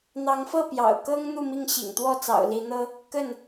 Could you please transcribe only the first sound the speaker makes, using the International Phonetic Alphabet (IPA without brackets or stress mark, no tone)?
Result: n̪